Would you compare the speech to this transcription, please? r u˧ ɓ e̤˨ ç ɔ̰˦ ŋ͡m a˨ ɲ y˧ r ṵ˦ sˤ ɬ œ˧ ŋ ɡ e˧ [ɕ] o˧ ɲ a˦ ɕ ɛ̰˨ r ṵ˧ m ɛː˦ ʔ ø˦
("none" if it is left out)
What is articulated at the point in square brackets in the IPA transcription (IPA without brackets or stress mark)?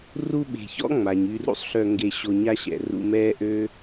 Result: ɕ